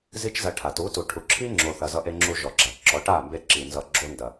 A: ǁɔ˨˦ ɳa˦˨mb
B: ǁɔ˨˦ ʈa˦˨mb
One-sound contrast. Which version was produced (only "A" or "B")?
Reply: B